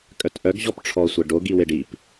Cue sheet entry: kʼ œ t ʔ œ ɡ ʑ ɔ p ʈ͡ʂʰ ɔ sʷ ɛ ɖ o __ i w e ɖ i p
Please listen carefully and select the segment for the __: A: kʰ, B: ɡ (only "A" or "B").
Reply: B